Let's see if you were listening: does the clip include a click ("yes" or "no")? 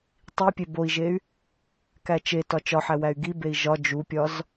no